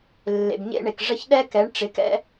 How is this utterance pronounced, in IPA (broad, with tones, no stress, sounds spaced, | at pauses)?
lː ḛ˩ b ɲ ḛ˧ ɳ e˩ k ʐ ə˧ ç ɗ ɛ˥ k ɛ˩˥ ɳ ʈ͡ʂ ɪ˩˥ k ɛ̰˥